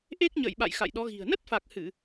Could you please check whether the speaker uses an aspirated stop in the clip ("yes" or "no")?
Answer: no